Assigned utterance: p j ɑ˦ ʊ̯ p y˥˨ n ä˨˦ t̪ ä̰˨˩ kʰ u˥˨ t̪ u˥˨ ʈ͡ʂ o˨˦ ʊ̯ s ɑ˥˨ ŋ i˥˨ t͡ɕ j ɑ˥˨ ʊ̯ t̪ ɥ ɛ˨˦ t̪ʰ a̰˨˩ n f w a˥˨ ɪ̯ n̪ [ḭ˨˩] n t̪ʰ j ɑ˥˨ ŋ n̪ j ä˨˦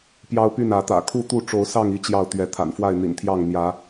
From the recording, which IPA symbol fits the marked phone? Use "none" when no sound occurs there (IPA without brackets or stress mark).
ḭ˨˩